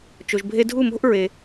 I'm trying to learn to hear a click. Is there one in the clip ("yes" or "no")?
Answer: no